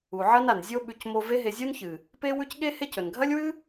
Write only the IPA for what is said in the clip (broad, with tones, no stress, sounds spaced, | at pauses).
u˨ ʕ ɐ˦ n a˨ n zʲ o˦ ɓ ʉ˧ c m o˧ v e˦ ɦ e˧ zʲ u˦ n ç ɨ˨ | p e˦ w ʉ˦ c ɠ e˦ h e˦ c ɵ˨ n ɡʱ ɐ˦ lʲ w ɨ˦